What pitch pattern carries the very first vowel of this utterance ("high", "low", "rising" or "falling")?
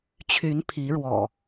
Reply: rising